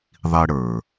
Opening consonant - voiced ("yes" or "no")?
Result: yes